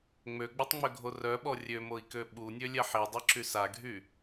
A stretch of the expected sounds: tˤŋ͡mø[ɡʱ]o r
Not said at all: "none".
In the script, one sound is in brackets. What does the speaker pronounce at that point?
ɡʱ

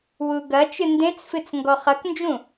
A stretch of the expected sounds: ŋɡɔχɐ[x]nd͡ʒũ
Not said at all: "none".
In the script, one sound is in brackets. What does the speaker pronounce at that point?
k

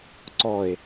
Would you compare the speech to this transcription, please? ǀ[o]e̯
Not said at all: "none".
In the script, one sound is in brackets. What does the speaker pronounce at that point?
ɔ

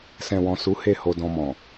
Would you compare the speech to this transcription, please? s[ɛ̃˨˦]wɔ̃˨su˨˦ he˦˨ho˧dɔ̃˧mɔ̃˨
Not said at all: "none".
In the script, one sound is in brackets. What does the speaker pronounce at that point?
ɛ̃˨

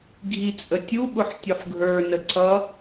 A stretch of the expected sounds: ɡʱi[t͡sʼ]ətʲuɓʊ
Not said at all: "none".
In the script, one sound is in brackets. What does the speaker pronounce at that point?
t͡sʼ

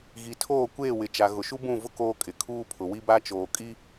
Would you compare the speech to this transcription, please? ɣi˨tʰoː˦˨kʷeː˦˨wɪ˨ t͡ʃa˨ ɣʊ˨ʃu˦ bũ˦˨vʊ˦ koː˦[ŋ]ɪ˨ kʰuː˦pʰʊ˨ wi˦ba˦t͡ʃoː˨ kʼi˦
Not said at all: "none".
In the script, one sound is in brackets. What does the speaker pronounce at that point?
kʼ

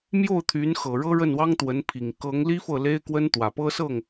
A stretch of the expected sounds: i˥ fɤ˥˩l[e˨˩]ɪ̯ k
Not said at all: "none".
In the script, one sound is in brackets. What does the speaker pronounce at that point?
e˥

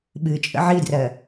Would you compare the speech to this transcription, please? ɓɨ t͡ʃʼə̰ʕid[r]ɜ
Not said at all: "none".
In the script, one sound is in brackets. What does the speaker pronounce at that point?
r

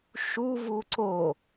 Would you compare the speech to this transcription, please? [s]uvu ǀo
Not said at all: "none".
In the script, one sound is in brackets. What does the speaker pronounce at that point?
ʃ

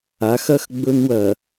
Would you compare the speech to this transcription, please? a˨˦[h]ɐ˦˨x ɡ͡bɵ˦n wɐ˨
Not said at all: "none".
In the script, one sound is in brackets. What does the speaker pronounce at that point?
x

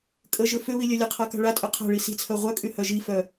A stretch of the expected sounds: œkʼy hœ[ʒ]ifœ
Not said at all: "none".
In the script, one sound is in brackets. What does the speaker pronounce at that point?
ʒ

